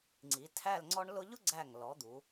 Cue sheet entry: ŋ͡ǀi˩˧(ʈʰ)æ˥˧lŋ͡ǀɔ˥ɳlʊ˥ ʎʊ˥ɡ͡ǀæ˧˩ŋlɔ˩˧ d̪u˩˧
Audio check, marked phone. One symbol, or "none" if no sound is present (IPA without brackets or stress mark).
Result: tʰ